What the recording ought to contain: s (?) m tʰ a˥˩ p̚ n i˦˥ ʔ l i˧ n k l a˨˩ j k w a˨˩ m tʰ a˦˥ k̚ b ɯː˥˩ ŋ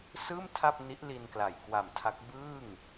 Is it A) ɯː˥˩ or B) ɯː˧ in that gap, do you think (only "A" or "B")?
A